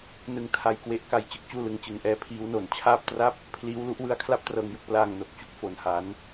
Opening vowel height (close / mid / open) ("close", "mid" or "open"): close